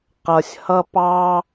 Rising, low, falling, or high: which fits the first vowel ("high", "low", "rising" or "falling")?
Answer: low